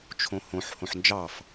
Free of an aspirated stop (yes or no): no